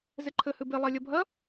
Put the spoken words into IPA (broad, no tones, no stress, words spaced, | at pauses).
zeǃʰɘ hɨbe lˠalʲɐbʱɐ